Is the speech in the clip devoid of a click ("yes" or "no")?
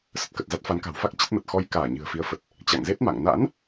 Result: yes